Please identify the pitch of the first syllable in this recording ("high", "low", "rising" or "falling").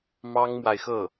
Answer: high